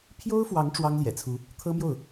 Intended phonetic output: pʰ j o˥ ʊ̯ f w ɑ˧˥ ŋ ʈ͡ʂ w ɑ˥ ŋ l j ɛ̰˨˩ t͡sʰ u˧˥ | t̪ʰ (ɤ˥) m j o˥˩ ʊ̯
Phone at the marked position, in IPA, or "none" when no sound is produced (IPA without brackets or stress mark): ɤ˥